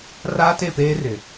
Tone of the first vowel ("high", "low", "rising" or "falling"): high